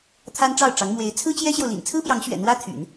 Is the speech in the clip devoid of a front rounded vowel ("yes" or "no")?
no